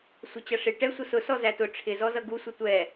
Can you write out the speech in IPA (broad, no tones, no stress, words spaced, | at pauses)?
sʷɪt͡ɕʌʂɪ ʈɛsʷʌ sʊ sɔzætʊ ʈ͡ʂʰɪzɔzʌ ɡusʷʌ tʷɛ